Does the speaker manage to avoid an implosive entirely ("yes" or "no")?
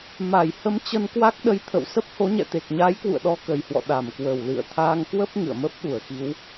no